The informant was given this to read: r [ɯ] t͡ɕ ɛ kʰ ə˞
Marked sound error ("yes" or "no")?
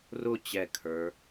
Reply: yes